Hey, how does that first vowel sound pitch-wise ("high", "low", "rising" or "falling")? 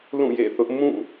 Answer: falling